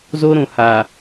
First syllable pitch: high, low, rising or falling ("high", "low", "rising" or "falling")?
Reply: high